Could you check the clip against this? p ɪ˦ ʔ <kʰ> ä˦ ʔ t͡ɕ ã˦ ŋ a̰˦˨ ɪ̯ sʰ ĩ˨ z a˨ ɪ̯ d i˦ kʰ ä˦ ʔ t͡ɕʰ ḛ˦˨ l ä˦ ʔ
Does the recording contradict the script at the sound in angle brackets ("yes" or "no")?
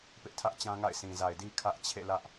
yes